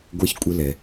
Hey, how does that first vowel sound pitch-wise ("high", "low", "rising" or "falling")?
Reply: high